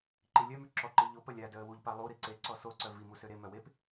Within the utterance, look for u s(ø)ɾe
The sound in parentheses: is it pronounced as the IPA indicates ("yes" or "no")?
yes